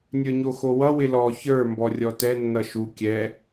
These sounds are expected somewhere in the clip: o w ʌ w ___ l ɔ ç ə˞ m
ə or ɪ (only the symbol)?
ɪ